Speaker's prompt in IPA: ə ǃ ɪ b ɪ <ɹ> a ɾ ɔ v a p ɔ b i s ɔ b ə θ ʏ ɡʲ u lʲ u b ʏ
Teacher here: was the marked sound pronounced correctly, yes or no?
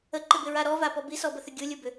yes